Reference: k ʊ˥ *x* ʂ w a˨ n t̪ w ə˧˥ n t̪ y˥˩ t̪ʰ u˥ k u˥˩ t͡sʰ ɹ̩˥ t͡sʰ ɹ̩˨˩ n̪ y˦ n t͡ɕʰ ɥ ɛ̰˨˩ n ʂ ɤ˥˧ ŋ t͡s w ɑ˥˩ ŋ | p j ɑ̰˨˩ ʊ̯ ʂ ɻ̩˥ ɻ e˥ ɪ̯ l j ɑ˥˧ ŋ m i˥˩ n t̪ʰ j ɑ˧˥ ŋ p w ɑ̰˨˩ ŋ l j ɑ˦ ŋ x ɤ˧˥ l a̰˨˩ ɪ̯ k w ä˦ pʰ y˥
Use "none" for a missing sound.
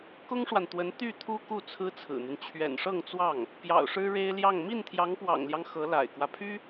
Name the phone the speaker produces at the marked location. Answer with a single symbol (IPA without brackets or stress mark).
ŋ